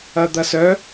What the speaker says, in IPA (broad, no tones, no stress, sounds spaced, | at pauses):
ɐ d̪ ɐ s œ